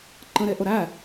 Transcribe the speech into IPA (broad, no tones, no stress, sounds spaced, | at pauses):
ǃ ə̃ ɾ e ʔ ʊ ɾ æ